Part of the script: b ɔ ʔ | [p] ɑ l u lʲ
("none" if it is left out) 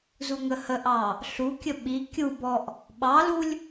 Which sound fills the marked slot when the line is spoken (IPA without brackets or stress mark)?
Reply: ɓ